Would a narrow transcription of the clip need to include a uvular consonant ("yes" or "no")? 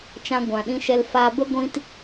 no